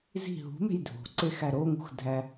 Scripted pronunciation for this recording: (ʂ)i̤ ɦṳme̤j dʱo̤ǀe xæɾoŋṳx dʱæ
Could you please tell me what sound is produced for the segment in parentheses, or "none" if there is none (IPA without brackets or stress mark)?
z